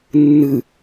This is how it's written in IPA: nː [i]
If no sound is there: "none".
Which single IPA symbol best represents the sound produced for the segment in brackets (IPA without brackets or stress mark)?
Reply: ɨ